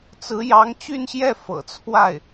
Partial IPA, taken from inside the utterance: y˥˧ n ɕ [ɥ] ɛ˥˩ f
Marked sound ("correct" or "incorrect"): incorrect